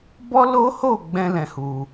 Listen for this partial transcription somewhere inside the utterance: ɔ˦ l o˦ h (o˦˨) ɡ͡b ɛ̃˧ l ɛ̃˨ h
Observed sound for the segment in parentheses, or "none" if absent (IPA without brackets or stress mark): o˦˨